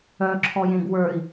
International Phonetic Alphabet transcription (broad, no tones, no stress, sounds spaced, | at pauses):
œ ǁʰ ɔ j ẽ ɡ w ə˞ i̯